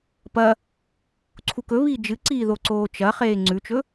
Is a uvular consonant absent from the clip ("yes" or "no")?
no